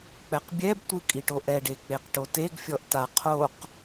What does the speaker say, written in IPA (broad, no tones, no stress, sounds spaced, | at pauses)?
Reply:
k͡p ɛ q bʲ ɛ b tʷ ɯ kʼ i ʈ o ʔ ɛ ɖ e k͡p e q ʈ o t e ɡ fʲ ɔ ʔ t a qʰ o q